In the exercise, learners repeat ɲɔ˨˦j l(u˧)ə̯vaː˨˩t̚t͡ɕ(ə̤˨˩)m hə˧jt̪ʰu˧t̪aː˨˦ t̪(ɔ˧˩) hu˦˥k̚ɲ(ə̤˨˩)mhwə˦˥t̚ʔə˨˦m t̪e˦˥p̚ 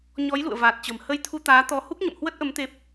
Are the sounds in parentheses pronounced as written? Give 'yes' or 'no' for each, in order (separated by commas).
no, yes, no, no